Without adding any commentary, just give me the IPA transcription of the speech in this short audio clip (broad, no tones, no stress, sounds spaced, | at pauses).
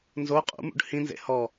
n z o qʼ ṵ m ṵ ɖ h ĩ n z ḛ h ɔ